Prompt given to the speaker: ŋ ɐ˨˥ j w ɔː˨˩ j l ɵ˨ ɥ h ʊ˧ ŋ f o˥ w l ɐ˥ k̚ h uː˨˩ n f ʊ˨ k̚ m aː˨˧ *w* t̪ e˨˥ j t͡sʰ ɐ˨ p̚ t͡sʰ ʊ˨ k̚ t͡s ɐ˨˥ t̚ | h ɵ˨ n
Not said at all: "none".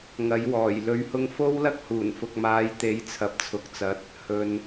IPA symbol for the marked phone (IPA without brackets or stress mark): j